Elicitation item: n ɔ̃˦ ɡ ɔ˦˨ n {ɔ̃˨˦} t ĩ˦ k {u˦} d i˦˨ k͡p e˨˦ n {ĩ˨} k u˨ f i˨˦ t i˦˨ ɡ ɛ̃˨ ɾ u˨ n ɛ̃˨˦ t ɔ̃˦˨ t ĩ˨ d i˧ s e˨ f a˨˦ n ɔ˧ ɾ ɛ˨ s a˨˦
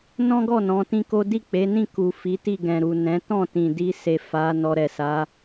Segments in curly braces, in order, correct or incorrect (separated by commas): correct, incorrect, incorrect